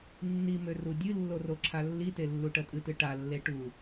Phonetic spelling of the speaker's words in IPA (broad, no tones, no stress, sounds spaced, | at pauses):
nː i m ø r u dʲ ɨ lː o r o ǁʰ a lː i t e lː u ʈ ɜ tʼ ɨ t ɨ ʈ a lː e ʈ u